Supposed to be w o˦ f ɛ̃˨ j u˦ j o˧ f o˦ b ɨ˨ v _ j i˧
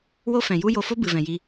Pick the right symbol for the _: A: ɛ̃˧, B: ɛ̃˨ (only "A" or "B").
B